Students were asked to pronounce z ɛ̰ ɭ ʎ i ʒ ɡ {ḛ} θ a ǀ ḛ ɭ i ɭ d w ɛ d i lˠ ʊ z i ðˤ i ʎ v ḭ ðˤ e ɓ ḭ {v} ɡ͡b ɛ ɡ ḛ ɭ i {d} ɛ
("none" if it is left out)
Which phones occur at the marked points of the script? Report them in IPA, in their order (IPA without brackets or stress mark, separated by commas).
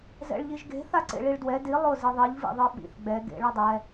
e̤, θ, dˤ